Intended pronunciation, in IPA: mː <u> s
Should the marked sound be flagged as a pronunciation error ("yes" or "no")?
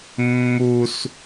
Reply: no